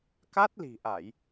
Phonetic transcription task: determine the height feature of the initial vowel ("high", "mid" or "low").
low